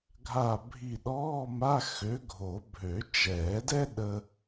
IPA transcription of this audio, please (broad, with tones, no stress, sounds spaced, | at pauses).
ɡʱ a˧˩ bʱ i˧˩ ɗ ɔː˧˥˧ m a˧˥˧ x ø˨˥ ɡʱ o˨˩˦ bʱ ø˨˩˦ t͡ʃ ɛː˨˩˦ d ɛ˥ ɗ ə˥